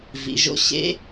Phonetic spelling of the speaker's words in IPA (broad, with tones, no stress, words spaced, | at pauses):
vḭ˩˧ʒo̰˧˥ ɕḛ˧˥